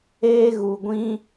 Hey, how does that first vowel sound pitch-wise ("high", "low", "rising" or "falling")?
high